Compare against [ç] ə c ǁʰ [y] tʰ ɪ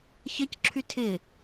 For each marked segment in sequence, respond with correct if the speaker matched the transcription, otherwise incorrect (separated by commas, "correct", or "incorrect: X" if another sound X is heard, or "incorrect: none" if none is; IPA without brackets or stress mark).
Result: correct, correct